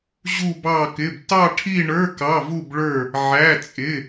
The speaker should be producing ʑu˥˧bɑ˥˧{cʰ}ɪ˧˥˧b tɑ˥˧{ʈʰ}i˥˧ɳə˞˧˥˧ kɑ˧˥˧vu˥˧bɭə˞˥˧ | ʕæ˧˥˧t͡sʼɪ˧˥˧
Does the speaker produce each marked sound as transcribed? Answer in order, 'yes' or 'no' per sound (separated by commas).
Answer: no, yes